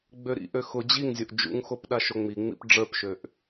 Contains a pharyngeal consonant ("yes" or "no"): no